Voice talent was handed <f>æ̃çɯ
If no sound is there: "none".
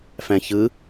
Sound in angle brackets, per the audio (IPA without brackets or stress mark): f